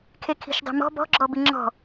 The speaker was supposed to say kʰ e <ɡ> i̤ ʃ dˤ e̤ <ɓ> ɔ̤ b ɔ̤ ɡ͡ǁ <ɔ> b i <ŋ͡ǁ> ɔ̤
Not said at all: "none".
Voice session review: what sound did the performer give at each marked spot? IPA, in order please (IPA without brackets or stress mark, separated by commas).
kʰ, m, ɔ, ŋ͡ǁ